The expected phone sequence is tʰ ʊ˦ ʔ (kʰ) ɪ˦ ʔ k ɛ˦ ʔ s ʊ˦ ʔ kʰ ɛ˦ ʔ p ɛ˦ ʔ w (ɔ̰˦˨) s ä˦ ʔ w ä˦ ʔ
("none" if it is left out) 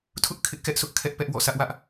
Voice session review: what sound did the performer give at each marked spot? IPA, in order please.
kʰ, ɔ̰˦˨

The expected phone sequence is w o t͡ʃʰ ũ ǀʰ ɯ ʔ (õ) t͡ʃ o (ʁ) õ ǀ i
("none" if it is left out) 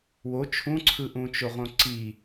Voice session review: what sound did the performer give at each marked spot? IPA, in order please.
ũ, ʁ

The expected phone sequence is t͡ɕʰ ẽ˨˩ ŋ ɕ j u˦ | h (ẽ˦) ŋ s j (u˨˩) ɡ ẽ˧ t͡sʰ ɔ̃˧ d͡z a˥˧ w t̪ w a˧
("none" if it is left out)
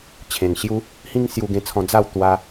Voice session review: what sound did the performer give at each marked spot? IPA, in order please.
ĩ˦, u˧

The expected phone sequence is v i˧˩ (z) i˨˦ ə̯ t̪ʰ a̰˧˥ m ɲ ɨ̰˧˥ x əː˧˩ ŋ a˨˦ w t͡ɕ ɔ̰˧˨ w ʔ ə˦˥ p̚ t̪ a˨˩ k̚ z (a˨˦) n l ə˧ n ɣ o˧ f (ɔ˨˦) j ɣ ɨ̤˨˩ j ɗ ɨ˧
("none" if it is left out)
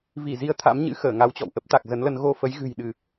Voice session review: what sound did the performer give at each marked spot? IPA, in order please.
z, ə˨˦, ə˨˦

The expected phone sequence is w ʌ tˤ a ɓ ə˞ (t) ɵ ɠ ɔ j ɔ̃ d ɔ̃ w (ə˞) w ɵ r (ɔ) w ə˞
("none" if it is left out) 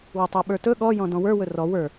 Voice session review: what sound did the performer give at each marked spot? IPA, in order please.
t, ə˞, ɔ

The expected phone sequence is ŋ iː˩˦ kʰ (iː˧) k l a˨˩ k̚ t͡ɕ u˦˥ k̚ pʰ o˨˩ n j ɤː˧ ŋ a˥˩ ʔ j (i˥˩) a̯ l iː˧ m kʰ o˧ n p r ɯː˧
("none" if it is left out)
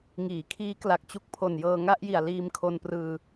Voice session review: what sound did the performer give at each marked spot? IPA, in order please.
iː˦˥, i˨˩

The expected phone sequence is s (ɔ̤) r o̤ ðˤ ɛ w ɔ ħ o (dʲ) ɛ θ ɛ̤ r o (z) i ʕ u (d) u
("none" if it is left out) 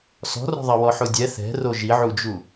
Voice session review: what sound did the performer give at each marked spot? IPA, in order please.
ɔ̤, dʲ, ʒ, d͡ʒ

